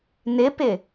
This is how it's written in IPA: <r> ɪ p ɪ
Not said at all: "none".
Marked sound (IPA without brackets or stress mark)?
n